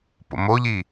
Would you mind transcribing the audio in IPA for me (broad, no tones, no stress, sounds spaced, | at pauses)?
p o̰ m o ʎ i